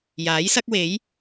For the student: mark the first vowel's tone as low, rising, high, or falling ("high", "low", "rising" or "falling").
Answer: rising